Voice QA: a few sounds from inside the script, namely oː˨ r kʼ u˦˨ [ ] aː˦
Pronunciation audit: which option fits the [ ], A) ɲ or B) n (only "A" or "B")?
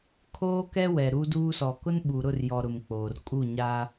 A